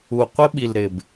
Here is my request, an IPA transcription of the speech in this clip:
u˨ qʷ ɪ˦ ɓ i˨ l ɾ ɪ˨ b

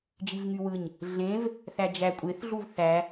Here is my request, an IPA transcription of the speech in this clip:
d͡ʒ i v ŋ y w ɯ ɲ | ɮ ẽ v | θ æ d͡ʒ æ kʷʼ e θ ɮ u v θ æ

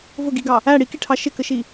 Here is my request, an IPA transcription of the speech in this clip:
v ʊ ɡ i ɡ ɑ | æ ɽ i k i ʈʰ ɑ ʃ ɪ k ə ʃ i

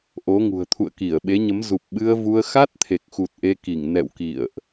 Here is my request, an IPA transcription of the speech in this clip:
ʔ o˨˦ ŋ ṳ˨˩ ə̯ t̪ʰ ṵ˧˨ ə̯ k i˧˩ ə̯ ɓ e˨˦ ɲ ə˨˦ m z u˨˩ p̚ ɓ ɨ˧ ə̯ v u˧ ə̯ x a˦˥ t̚ t̪ʰ e˨˩ k̚ x u˨˩ t̚ ʔ e˧ k i˧˩ ŋ n ɛ̰˧˨ w k ḭ˧˨ ə̯ ʔ

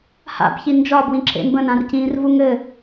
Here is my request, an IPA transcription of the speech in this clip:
h a̰ b ç i n d͡ʒ ɒ b w ĩ ǁ ḛ m b ə̃ n ã r c ĩː r v u ŋ ɘ

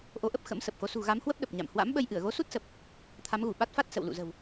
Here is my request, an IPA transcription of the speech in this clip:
ʔ o˨˦ ʔ ə˦˥ p̚ x ə̰˧˥ m s ə˨˩ p̚ x o˨˦ s ṳ˨˩ ɣ a˨˦ m h w ə˦˥ p̚ ɗ ə˨˩ p̚ ɲ a̰˧˨ m h w a̰˧˥ m ɓ ə˧ j ʔ ɨ˧˩ ə̯ ɣ o˨˦ s u˦˥ t̚ s ə˨˩ p̚ | t̪ʰ a˨˦ m ɣ u˧˩ ɓ a˦˥ t̚ f a˦˥ t̚ s ə̰˧˨ w l ṵ˧˨ z ə̤˨˩ w

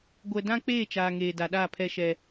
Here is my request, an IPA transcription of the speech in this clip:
ɡʷ ɛ˨ d ã˦ k͡p eː˦˨ t͡ʃ aː˨ ŋ eː˨ d a˨ ɗ aː˦˨ pʰ ɛ˦ ʃ ɛ˦

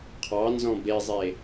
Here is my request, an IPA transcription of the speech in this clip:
qʰ ɑ n z ɔ̃ b e zˤ e

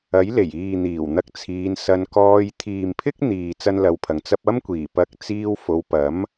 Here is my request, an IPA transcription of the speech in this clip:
ɐ˨˥ j l e˨˩ j iː˨ n̪ iː˨˩ w n̪ ɐ˧ k̚ t͡sʰ iː˨˧ n s ɐ˧ n k ɔː˧ j t̪ʰ iː˨ m pʰ ɪ˥ k̚ n̪ iː˨ t͡s ɐ˥ n l ɐ˧ w pʰ ɐ˨ ŋ t͡s ɐ˧ p̚ ɐ˥ m kʷ iː˨˩ p ɐ˧ k̚ t͡s iː˧ w f o˨˧ w p ɐ˨˥ m

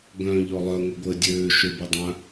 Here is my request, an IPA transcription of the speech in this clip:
ɡ œ̃ ʎ ɔ lˠ œ ŋʷ ɛ ɡʷ əː dʲ øː ʃ ø b i dˤ œ̃

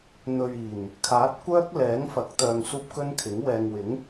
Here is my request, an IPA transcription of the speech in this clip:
n̪ ɵ˨ ɥ iː˨˩ n | kʰ aː˨˥ t̚ kʷ œː˥ k̚ l ɛː˨˥ ŋ f ɐ˨˥ k̚ t̪ œː˧ ŋ s uː˥ p̚ k ɵ˥ n kʰ ɪ˨˥ ŋ w ɛː˨ ŋ w ɪ˨˥ ŋ

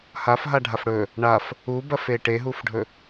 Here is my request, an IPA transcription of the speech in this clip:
h a f ɦ a ɖʱ a f ɽ ɵ | ɳ a f | u b ɐ f e ʈ e ɦ u f ɖʱ ɵ

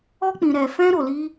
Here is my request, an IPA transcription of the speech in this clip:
ɔ˦ k͡p ĩ˧ ɾ ɛ˧ f ɛ̃˦ ɾ o˧ l i˦

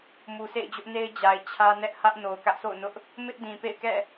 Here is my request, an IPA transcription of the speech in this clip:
m u˨ s ḛ˦˨ ɪ̯ d͡ʑ ʊ˦ ʔ n e˦ ɪ̯ d͡ʑ a˨ ɪ̯ t͡ɕʰ ä˦ n ɛ˦ ʔ h ä˦ ʔ n o˨ ʊ̯ k ä˦ ʔ s o̰˦˨ ʊ̯ n ʊ˦ ʔ | m ɪ˦ ʔ d ĩ˨ p ḛ˦˨ ɪ̯ k ɛ̰˦˨

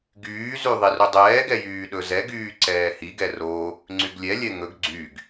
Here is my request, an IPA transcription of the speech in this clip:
ɡ yː z y ðˤ i r u dˤ ɛː ɡ ɛ j yː ɗ ɵ z ɛ ɡ yː ǀ ɛː h i ɡ ɛ r o | ŋ͡ǀ y ɡ lʲ ɛ lʲ ɛ ŋ ɵ ɡ ɡ͡ǀ y ɡ

